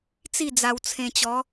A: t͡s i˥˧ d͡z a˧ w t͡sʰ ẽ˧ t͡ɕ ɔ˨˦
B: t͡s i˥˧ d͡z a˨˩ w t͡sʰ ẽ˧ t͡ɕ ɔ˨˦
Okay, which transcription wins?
A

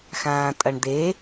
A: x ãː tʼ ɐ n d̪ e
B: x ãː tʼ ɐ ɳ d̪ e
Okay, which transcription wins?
B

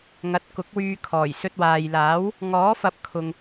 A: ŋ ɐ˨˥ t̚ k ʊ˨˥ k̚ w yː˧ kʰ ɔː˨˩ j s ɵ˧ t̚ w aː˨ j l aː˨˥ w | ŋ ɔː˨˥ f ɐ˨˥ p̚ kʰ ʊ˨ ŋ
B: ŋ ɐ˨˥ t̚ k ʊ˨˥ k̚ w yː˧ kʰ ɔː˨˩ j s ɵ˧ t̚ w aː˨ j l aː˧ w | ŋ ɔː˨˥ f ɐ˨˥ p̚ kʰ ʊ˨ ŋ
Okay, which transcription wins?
A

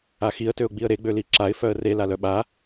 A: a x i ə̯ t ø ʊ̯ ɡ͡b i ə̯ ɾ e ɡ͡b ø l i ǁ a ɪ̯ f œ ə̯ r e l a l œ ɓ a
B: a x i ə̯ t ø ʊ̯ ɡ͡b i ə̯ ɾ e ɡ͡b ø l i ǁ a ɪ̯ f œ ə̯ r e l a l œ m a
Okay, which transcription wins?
A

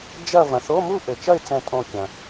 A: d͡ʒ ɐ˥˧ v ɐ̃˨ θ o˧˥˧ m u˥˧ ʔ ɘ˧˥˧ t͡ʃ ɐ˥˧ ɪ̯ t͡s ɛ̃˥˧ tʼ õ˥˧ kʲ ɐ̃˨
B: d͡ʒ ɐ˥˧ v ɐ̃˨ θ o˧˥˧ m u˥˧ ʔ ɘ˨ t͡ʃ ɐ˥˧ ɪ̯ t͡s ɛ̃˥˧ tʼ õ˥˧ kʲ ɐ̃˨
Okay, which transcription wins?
B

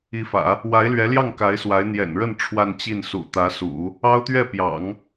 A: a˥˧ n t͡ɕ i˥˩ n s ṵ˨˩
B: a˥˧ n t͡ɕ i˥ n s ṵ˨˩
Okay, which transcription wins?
A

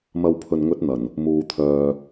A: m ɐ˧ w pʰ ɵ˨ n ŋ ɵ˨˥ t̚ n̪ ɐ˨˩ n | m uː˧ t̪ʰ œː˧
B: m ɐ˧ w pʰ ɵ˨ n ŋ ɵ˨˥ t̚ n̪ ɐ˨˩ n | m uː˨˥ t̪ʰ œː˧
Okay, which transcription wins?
A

